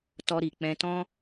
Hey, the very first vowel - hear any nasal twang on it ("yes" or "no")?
no